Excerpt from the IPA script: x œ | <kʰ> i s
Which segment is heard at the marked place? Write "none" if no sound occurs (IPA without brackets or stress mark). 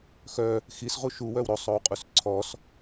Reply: x